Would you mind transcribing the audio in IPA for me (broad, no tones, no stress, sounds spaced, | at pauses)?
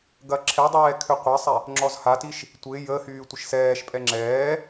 ɡ ɐ ǁʰ ɛ dˤ ɛː kʰ ø qʷ ɐ sˤ ɛ | ŋ͡ǁ ɔ z h a t i ʃ | tʷ ɪ j ə h yː tʷ ɪ ʃ s ɛː ʃ pʼ ɛ ŋ͡ǁ ɛː